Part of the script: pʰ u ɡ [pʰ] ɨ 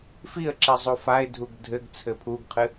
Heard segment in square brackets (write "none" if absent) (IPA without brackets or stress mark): qʰ